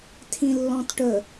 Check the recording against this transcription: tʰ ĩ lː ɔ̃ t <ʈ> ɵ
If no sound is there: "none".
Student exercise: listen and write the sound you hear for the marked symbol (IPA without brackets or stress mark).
ʈ